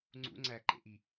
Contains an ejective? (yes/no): no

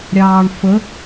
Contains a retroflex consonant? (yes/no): yes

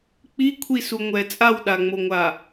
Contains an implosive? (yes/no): yes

